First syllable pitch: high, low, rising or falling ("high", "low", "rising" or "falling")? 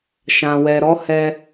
low